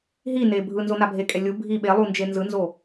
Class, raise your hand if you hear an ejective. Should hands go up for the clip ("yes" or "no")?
yes